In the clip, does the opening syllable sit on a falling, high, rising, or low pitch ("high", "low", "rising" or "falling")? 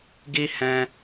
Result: high